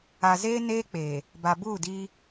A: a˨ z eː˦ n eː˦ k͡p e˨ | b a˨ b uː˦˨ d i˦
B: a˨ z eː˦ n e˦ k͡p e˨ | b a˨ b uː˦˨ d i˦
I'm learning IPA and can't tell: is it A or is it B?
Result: A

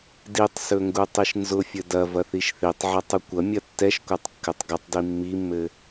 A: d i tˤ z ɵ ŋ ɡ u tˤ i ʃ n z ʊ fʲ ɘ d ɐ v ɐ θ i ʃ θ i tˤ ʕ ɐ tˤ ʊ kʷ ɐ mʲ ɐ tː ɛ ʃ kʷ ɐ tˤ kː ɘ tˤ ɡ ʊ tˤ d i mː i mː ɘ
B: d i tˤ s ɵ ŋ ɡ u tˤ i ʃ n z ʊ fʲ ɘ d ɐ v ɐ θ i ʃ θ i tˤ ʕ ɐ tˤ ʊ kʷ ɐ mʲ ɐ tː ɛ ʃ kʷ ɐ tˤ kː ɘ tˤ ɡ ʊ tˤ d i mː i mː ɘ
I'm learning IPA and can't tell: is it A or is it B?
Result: B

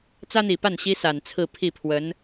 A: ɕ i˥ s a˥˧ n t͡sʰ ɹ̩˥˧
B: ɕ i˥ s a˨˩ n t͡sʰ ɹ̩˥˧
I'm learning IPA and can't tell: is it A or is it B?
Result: B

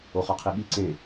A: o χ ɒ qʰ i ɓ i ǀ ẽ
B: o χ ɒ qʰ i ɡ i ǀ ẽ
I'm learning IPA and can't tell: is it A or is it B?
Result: A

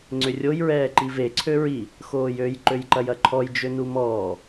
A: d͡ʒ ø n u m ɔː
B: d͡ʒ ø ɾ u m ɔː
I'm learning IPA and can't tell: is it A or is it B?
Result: A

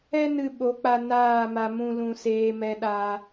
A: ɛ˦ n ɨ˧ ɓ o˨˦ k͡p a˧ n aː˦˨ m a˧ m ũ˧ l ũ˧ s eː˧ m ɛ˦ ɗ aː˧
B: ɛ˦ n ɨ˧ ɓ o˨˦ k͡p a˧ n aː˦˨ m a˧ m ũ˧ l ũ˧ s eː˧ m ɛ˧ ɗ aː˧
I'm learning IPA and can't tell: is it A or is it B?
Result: B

